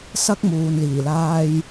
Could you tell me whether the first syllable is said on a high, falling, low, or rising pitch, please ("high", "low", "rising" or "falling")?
high